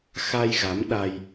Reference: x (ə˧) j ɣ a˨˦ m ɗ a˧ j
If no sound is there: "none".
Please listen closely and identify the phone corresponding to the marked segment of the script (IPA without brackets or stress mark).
a˧